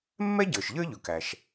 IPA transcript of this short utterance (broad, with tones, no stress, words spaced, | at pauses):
mːɛ˥ɟə˞˩ʃ ʎə˞˥ʎʊ˩kæ˩ʃ